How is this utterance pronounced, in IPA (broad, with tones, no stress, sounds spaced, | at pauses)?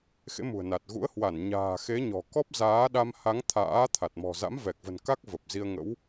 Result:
x ḛ˧˥ m ṳ˨˩ ə̯ n a˨˩ t̚ ɣ ṵ˧˥ ə̯ h w a˧˩ n ɲ a̤ː˨˩ x e˨˦ ɲ ɔ̤˨˩ k ɔ˦˥ p̚ z aː˨˦ ɗ a˧ m h a˨˦ ŋ t̪ʰ a̰ː˧˥ t̪ʰ a˨˩ t̚ m ɔ̤˨˩ z a̰˧˥ m v ɛ˨˩ k̚ v ə̤˨˩ n k a˦˥ k̚ v ə˨˩ p̚ z i˧ ə̯ ŋ ə̰˧˥ w